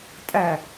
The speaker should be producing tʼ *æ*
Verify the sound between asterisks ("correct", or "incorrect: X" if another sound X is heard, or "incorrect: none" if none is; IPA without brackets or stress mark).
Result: correct